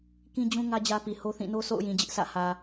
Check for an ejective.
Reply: absent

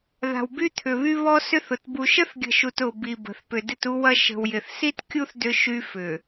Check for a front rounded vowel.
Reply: present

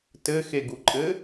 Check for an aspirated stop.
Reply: absent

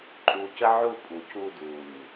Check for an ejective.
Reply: present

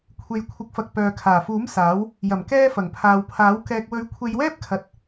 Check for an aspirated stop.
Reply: present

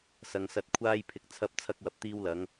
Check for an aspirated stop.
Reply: present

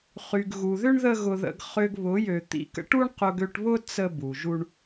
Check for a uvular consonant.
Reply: present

